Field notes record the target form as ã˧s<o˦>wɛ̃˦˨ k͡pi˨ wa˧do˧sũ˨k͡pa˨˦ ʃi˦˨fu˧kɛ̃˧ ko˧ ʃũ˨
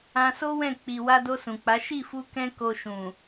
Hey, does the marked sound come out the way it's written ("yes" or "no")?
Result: yes